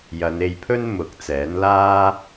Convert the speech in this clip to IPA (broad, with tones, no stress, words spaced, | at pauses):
jɐ˨˧ne˧jpʰɵ˥n mʊ˨˥k̚t͡sɛː˨˥n laː˥